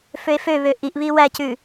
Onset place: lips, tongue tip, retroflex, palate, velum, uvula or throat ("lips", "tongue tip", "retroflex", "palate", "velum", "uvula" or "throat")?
lips